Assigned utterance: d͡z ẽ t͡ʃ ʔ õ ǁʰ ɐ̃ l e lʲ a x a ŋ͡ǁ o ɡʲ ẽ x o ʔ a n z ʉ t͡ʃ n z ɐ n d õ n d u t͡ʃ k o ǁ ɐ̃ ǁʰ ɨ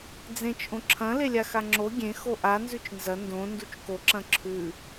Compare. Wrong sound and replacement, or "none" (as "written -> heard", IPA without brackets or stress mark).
ɨ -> ʉ